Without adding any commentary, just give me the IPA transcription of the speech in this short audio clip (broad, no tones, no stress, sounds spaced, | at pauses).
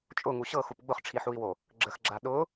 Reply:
t͡ʃʼ ʊ ŋ u ɕ ɤ x u p ɡ͡b ʊ χ ʈ͡ʂʰ i ħ u i̯ w o | ɡ͡ǁ ə x ɡ͡ǁ a ɗ ʊ